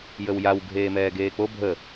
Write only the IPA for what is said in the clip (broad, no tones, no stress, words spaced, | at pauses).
jəwjaw ɡʱeːmɛːɡeːk͡po bʱə